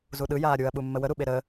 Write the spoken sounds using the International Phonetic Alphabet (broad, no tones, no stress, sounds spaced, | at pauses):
z u ɗ ɯ j aː ɾʲ u ɐ̯ ɓ u mː ə w ə ɾ u ɓ e ɾ əː